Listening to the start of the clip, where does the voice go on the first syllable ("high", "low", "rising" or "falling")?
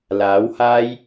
rising